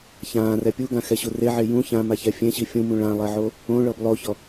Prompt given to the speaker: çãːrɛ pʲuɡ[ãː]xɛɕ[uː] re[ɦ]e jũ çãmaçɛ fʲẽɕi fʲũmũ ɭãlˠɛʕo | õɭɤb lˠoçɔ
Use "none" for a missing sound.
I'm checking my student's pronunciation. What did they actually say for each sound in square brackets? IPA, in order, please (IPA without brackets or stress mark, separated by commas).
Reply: ã, u, ʕ